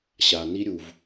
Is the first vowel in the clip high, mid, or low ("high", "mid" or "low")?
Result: low